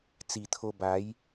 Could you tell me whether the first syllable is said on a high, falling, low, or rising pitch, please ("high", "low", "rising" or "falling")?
low